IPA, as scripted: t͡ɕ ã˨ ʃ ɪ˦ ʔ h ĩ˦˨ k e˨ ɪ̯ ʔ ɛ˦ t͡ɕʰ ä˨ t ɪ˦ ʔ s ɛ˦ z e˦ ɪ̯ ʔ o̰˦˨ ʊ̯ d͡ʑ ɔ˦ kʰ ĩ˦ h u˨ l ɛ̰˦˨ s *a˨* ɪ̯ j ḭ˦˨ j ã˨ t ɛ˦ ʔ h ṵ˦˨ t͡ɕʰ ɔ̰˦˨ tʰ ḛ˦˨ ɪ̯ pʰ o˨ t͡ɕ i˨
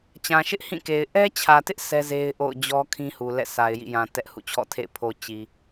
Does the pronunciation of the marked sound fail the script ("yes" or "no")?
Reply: no